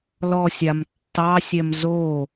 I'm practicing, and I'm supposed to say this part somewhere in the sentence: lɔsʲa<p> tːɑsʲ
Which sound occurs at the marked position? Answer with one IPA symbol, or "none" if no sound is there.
m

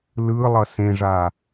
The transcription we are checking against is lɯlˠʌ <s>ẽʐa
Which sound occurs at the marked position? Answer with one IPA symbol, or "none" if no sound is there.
s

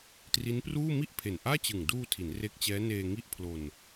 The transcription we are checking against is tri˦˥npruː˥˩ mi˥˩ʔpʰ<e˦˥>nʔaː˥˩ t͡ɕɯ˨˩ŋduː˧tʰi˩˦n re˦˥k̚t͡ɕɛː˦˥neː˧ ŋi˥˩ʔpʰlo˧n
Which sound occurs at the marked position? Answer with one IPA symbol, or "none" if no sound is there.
e˨˩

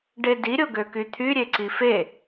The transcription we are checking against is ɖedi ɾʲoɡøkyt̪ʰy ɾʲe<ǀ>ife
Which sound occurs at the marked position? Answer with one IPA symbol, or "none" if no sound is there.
ǀ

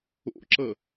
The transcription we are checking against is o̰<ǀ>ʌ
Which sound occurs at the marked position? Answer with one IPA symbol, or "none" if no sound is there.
ǁ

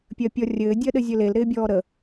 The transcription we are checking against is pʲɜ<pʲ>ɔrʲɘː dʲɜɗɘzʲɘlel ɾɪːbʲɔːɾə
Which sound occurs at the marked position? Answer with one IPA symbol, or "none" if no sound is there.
pʲ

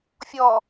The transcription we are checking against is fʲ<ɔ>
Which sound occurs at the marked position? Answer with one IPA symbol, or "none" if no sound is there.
ɔ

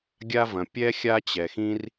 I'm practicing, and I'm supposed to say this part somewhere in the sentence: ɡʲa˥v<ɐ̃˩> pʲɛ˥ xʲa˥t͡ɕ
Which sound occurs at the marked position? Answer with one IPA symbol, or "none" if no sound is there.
ɐ̃˩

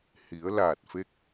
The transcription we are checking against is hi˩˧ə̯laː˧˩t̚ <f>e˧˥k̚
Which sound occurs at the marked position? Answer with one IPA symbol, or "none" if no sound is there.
f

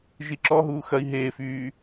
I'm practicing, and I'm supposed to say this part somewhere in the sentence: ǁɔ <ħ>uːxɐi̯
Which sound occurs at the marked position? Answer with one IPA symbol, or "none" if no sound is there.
ɦ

